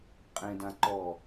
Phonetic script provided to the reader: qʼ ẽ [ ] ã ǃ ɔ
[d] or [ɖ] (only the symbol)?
d